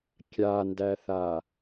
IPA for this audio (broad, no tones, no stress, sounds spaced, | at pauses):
kʲ a n d æ θ a